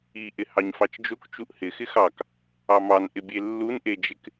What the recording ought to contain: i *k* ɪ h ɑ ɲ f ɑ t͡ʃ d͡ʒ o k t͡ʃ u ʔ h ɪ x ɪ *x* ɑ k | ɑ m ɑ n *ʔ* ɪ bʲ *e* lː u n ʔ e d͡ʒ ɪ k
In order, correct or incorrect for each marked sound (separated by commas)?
incorrect, correct, correct, correct